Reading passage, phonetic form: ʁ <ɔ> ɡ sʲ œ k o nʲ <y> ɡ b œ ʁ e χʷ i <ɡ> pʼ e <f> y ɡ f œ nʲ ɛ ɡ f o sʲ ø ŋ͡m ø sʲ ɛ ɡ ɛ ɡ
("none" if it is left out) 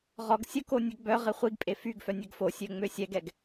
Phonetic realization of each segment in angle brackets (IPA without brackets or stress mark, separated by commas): ɔ, ø, ɡ, f